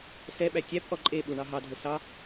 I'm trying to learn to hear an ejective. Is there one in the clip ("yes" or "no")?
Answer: yes